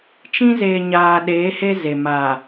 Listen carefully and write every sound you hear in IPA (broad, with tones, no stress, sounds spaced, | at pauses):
t͡ʃ ĩ˦ z eː˨ ɲ aː˨ ɗ eː˨˦ h e˦ z e˨ m aː˨